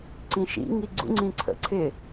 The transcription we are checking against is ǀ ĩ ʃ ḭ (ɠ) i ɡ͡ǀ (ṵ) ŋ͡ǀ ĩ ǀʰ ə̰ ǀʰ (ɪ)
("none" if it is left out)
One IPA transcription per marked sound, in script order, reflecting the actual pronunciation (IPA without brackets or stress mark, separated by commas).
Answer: ŋ, ṵ, ɪ